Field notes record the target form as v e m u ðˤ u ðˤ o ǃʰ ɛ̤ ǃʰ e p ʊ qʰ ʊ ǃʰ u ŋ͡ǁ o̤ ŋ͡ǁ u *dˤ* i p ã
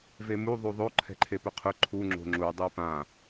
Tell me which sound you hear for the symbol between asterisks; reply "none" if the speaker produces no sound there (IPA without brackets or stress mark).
dˤ